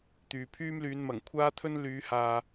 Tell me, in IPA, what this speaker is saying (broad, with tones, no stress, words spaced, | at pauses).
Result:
t̪yː˨pʰyː˥mlyː˨˧n mɐ˨˩ŋkʷʰaː˥t̪ʰɵ˥n lyː˨˧haː˨